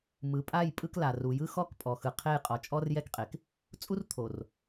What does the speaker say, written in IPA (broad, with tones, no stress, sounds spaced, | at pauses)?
m ɯ˨ pʼ a˦˨ j pʼ ɯ˦ k l a˨ r u˨ j ɯ˦ x ɔ˦˨ k pʼ ɔ˨ x ɯ˨ qʰ e˦˨ j qʼ ɔ˨ t͡ʃʼ ɔ˦ r j ɛ˦ k qʼ e˨ k | t͡sʼ u˦ r t̪ʰ o˨ r